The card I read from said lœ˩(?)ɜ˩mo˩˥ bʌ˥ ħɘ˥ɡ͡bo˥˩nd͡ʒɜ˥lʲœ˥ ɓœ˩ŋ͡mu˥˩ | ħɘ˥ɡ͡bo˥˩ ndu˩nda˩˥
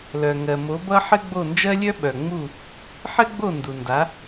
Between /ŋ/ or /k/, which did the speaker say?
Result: ŋ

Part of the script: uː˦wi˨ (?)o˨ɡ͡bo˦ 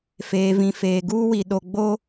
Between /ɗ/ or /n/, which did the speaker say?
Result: ɗ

